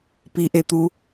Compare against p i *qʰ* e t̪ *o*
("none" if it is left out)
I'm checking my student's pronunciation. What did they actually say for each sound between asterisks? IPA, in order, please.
ʔ, u

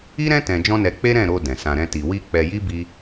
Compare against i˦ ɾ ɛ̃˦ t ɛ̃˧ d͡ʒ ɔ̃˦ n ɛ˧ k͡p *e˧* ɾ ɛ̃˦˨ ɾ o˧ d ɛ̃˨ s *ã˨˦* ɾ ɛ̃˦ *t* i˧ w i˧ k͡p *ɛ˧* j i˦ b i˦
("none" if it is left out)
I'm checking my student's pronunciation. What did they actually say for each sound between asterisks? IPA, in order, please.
e˦, ã˧, t, ɛ˧

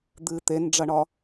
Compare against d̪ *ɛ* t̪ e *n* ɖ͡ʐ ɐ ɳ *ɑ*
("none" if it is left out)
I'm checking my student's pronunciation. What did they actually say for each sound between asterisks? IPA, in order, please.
ɨ, n, ɒ

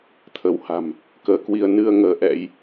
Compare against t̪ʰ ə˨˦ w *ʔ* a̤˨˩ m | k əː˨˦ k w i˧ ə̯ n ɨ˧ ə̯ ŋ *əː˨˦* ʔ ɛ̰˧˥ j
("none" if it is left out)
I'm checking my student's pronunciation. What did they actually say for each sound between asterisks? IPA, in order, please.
h, əː˨˦

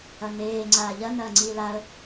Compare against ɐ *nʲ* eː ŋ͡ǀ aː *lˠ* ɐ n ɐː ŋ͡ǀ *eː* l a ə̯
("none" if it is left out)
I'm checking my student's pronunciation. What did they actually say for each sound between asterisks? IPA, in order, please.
n, ʎ, iː

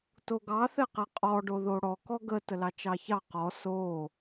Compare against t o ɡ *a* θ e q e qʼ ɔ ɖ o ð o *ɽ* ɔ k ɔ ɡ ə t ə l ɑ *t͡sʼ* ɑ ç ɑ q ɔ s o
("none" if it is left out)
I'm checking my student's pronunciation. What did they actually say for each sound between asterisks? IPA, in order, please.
ɑ, ɽ, t͡ʃ

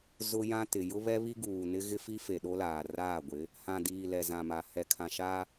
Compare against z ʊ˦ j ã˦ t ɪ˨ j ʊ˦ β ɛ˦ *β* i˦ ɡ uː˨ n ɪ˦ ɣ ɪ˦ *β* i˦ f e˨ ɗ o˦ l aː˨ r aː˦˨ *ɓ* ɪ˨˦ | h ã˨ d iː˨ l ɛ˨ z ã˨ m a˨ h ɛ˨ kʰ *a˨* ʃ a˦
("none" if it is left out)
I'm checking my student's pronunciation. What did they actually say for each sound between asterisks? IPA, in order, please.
β, f, ɡʷ, ã˨

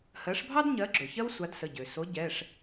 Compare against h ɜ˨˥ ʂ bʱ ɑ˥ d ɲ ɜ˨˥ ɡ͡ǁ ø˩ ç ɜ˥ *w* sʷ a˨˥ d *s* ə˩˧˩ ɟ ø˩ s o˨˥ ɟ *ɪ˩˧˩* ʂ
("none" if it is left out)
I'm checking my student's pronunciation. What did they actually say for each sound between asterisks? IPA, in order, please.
w, s, ɛ˩˧˩

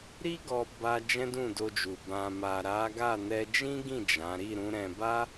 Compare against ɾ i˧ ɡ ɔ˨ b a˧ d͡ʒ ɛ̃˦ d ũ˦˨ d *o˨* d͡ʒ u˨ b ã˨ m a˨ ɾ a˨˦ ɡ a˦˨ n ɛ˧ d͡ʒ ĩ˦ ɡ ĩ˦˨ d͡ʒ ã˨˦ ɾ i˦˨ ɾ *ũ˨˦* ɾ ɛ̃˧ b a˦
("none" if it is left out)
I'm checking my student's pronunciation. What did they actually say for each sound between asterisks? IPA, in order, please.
o˧, ũ˨˦

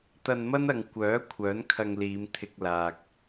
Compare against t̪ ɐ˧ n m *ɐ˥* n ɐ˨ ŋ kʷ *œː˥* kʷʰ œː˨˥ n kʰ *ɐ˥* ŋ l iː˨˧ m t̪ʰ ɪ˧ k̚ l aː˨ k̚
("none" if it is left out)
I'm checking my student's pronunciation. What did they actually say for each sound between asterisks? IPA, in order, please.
ɐ˥, œː˨˥, ɐ˧

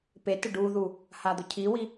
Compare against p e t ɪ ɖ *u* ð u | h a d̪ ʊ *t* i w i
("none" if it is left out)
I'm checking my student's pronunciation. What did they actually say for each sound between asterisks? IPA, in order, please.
u, cʰ

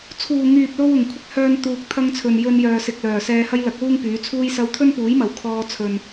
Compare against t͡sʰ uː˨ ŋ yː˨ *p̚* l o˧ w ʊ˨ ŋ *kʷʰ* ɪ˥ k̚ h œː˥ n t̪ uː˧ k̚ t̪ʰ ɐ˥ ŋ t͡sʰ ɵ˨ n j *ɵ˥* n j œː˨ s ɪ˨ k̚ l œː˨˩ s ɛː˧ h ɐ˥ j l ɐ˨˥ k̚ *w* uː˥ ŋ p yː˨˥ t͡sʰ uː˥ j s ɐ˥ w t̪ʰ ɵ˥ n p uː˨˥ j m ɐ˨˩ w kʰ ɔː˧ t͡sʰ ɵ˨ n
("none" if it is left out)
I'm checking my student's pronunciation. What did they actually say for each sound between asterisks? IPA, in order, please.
p̚, kʷʰ, ɵ˧, w

